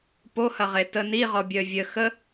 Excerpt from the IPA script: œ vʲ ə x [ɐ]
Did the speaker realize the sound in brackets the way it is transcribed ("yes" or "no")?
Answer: no